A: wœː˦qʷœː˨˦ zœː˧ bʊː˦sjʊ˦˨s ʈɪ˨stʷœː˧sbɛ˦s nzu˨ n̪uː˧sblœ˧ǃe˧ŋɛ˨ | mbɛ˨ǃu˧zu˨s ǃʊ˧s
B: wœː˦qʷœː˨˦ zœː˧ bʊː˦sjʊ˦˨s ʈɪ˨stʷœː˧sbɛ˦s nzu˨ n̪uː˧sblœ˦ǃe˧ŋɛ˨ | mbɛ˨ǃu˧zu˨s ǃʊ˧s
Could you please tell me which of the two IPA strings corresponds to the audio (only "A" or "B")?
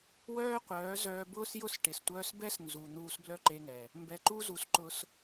B